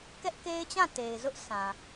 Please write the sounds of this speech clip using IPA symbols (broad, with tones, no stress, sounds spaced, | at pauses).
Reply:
k ɛ˦ ʔ k e˦ ɪ̯ t͡ɕ ã˦˨ t e˨ ɪ̯ z ʊ˦ ʔ sʰ ã˨